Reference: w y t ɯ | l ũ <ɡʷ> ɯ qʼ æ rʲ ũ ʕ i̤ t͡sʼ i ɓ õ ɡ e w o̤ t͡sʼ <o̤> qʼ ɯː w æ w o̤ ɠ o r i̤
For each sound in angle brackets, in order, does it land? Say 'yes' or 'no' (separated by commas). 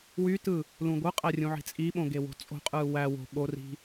yes, yes